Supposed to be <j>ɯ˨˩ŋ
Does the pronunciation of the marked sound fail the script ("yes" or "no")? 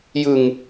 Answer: no